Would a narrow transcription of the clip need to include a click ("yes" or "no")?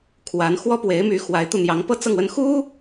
no